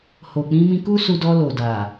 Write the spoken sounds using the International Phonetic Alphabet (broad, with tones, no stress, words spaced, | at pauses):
ho˨k͡pĩ˧mĩ˧ ku˦su˧dɔ˧ lo˨da˨